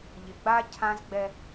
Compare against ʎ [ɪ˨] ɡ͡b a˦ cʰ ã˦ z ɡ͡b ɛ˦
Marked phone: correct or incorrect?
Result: correct